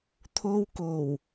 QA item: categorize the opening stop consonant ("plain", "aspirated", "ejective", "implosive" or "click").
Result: aspirated